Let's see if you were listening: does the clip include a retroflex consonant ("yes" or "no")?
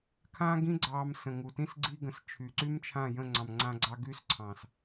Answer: no